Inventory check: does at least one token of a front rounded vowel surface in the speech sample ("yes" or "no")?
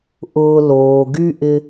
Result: yes